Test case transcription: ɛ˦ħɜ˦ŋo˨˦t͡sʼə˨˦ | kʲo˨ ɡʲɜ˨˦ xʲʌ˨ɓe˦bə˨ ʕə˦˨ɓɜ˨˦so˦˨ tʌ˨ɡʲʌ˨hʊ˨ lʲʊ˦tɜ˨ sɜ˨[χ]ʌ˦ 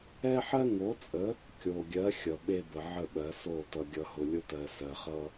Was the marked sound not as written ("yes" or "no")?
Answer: no